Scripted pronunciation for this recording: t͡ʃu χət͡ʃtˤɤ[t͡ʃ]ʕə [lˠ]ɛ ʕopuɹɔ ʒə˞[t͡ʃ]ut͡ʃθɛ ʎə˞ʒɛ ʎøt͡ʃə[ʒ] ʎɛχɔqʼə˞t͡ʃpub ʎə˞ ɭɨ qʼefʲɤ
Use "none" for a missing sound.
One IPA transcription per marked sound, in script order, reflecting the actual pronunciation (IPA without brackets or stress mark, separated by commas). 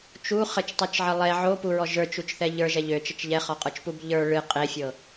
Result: t͡ʃ, lˠ, t͡ʃ, t͡ʃ